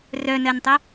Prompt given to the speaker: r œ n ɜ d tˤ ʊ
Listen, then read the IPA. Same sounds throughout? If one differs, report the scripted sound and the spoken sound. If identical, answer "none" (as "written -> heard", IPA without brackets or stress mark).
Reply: d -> n